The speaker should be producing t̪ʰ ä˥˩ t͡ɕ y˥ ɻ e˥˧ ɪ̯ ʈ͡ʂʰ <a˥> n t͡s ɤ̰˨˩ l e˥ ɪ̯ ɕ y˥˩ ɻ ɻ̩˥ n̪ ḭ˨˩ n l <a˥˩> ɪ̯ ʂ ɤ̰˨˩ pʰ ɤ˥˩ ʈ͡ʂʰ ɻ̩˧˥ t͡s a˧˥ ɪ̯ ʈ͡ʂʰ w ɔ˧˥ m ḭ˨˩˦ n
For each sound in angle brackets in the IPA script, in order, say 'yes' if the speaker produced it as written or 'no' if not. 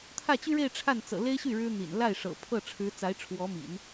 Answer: no, yes

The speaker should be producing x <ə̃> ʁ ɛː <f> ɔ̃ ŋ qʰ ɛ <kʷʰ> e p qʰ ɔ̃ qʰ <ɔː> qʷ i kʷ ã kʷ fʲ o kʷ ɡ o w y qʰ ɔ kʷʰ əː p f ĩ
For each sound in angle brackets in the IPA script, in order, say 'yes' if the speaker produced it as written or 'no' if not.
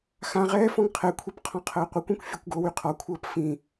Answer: no, yes, yes, no

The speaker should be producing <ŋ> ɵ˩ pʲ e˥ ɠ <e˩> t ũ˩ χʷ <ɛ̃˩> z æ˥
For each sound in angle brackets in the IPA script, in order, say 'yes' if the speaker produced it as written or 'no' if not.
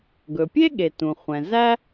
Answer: no, yes, yes

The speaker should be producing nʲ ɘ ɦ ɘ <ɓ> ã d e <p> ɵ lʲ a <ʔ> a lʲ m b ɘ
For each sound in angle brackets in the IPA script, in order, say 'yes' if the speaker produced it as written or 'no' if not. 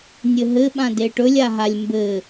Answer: yes, no, no

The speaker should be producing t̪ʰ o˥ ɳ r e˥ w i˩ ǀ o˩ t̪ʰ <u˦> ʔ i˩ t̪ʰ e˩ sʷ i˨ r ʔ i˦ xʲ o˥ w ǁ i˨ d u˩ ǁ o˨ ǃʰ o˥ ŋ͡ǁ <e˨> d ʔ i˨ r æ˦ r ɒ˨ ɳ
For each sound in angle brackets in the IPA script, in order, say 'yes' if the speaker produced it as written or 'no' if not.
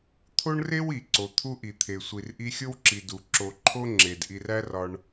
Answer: yes, no

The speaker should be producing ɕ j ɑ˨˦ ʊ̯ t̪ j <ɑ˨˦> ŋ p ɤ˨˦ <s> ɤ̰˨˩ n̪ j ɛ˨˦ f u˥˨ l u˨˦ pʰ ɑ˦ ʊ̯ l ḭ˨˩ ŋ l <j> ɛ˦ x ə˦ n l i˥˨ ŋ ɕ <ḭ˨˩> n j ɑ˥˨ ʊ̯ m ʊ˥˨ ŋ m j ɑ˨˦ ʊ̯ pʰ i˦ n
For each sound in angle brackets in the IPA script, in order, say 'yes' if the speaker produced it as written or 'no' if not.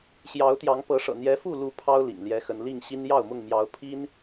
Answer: yes, no, yes, no

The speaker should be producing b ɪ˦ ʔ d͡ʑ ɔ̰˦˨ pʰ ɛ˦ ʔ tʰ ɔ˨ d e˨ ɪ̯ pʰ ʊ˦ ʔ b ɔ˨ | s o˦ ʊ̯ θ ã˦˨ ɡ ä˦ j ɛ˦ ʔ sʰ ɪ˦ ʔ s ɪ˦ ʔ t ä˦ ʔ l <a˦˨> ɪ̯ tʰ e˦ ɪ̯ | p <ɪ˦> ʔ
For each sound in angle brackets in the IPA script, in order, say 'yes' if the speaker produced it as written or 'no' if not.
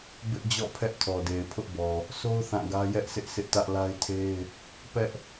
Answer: no, no

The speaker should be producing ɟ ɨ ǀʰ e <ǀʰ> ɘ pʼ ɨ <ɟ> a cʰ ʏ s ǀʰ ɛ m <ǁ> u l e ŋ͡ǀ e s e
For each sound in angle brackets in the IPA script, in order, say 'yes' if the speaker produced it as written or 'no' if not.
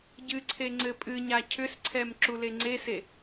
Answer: no, no, yes

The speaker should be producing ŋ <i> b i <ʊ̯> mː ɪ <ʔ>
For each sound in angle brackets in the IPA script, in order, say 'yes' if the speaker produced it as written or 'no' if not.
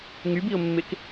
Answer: no, yes, no

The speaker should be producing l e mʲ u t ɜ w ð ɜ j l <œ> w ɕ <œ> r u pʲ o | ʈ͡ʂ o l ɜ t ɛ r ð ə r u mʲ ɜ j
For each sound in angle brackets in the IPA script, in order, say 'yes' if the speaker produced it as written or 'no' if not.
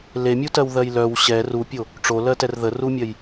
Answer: yes, no

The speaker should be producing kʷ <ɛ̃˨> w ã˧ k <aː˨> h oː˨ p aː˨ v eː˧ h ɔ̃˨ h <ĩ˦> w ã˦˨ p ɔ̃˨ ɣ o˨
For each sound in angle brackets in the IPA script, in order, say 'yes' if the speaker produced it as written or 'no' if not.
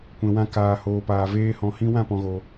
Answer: yes, yes, yes

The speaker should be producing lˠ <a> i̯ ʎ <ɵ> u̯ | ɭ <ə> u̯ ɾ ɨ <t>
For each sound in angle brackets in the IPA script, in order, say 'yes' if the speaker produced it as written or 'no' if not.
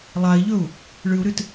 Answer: yes, yes, no, yes

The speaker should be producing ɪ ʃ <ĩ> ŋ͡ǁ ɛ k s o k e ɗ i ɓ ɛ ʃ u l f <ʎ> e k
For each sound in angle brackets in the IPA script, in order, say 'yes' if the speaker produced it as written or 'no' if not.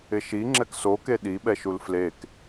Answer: no, no

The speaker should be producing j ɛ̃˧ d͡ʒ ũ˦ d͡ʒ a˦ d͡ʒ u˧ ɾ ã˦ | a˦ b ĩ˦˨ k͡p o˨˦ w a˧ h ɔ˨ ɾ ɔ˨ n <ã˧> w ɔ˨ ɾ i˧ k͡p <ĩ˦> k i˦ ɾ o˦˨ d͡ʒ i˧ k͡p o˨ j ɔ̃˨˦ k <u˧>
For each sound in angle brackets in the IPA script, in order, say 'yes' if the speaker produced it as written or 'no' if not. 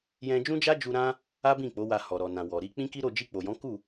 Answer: no, yes, no

